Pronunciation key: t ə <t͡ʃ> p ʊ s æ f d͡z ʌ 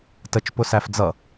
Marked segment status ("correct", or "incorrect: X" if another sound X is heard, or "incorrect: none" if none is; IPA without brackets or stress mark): correct